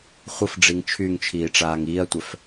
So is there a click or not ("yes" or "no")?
no